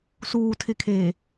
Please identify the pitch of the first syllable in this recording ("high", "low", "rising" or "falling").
low